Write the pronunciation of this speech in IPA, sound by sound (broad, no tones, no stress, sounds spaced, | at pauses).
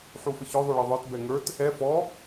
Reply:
ħ u f ə ç œ ðˤ ø ɭ ɘ ðˤ ə˞ t b ɛ ŋ ə˞ t | ɛ f ɔ